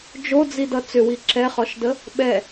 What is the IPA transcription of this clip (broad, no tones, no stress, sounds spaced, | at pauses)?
d͡ʒ o d͡z i d ʌ t͡s ʏ w i ǁ ɛ χ ɔ ʃ d ə | ɓ ɛ